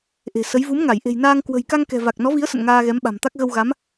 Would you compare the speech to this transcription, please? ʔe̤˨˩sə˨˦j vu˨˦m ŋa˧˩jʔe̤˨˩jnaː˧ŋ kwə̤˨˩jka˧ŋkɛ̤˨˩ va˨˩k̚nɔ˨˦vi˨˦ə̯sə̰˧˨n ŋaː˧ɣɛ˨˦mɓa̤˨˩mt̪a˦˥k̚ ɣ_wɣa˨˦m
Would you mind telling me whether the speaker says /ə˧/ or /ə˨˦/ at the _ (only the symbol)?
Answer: ə˧